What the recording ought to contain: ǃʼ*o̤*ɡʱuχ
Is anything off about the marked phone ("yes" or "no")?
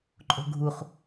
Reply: no